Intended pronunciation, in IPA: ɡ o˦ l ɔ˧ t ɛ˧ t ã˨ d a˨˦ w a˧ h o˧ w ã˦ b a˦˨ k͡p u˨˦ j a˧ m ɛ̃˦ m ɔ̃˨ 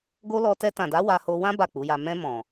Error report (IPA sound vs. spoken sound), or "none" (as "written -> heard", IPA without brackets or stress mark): ɛ̃˦ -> ɛ̃˧